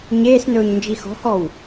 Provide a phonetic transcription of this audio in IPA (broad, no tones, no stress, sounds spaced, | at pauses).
ɲ eː s n ɵː ɲ n d͡ʒ i x ɔ̤ h ɔ w